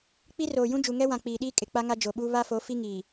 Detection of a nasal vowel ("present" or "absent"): present